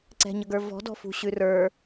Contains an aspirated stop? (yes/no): no